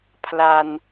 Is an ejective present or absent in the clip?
absent